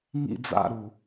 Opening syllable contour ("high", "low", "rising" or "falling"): falling